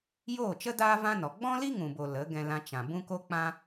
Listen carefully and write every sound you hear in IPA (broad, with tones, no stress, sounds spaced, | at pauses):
j oː˦˨ t͡ʃ ə˦ d aː˦ v ã˦ n ɔ˨ ɡ͡b ɔ̃˦ l i˦ ŋ ũ˨ b o˨ l ə˨˦ ɡ ɛ̃˧ l ã˧ t͡ʃ ã˨ b ũ˦ k o˦ k͡p ã˦